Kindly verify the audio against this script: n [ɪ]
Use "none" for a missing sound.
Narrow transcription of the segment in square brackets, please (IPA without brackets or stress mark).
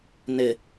ɪ